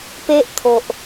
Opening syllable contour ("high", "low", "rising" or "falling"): high